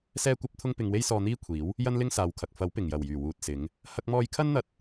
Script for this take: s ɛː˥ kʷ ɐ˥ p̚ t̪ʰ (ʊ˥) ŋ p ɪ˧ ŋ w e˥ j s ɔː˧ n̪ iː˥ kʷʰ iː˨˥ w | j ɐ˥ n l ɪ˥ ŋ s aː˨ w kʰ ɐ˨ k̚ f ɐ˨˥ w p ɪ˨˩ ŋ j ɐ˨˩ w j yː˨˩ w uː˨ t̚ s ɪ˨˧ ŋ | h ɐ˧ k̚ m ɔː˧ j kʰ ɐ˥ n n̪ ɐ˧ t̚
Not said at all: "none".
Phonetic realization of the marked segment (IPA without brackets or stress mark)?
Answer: ʊ˥